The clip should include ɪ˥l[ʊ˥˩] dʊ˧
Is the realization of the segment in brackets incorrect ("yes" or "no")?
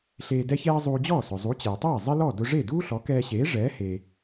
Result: yes